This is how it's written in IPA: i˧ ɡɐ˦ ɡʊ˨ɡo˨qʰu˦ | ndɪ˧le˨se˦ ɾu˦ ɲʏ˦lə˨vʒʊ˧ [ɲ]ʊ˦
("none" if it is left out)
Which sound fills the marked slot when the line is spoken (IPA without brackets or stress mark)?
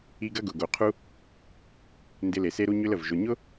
ɲ